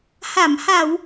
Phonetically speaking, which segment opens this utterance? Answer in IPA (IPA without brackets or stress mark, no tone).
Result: h